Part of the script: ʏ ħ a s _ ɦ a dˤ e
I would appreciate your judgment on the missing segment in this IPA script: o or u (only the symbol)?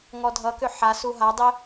u